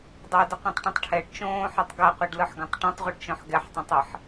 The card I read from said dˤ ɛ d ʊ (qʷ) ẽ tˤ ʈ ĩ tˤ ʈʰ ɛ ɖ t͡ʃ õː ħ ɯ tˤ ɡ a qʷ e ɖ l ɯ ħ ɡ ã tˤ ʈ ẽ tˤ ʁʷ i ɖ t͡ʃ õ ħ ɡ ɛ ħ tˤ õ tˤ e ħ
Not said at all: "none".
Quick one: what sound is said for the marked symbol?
qʷ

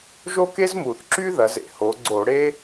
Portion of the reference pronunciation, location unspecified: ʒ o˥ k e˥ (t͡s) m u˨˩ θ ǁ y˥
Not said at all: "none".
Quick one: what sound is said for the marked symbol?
z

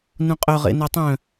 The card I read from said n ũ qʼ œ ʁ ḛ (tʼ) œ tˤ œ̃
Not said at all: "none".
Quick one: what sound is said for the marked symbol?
n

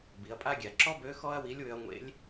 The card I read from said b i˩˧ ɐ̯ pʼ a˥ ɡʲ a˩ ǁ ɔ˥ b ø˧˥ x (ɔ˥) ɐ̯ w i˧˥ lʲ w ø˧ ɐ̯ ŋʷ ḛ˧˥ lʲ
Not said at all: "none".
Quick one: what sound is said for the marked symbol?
ɔ˥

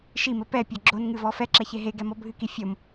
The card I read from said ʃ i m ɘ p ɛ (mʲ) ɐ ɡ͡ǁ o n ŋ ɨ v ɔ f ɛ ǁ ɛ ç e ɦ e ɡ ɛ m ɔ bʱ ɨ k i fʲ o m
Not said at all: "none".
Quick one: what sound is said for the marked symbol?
pʲ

